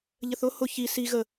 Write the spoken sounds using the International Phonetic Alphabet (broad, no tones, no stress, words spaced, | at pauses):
ʎəθʊ hʊ çi si ɣə